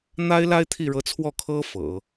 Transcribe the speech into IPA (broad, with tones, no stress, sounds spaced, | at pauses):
n̪ a˥ ɪ̯ l a˥ ɪ̯ t̪ʰ i˥˩ ɻ ɤ˧˥ t͡sʰ w ɔ˥˩ kʰ ɤ˥ f ɤ̰˨˩˦